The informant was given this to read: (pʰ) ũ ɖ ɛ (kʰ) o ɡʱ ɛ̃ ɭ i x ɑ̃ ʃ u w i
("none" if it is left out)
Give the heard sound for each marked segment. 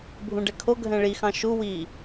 bʱ, kʰ

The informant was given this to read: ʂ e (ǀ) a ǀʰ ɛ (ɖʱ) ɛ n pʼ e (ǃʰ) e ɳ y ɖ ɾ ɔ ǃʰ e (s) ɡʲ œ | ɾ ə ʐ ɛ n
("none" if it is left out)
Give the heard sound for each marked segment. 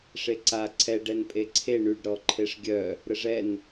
ǀ, ɖ, ǀʰ, ʂ

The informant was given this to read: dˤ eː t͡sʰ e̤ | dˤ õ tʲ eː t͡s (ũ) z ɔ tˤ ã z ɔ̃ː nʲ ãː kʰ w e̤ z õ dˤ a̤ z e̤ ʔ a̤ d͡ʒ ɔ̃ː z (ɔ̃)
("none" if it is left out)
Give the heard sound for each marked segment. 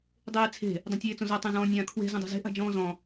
õ, ɔ̃

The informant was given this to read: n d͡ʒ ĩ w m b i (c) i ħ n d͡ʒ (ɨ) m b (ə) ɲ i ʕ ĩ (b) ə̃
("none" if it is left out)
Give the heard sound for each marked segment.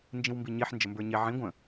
ɲ, ə, ə˞, ɡʷ

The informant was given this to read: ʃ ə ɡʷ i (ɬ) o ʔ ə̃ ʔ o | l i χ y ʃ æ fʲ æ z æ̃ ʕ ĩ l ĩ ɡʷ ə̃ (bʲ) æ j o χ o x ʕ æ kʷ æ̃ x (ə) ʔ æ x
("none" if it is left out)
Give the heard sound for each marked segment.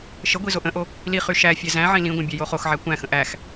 z, bʲ, ə̃

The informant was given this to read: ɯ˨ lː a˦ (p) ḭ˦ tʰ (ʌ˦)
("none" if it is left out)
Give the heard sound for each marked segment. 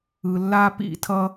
p, ʌ˦

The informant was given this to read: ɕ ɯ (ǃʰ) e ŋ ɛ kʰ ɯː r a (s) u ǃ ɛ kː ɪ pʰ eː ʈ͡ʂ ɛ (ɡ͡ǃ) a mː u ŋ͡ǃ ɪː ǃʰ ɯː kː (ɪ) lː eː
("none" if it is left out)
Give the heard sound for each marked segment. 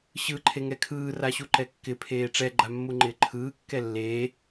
ǃʰ, ɕ, ɡ͡ǃ, ɛ

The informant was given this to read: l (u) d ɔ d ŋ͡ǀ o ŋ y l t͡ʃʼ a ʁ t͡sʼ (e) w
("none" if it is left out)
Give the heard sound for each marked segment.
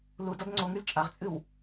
u, ɨ

